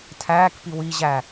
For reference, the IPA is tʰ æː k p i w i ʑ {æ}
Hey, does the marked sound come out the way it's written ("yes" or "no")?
yes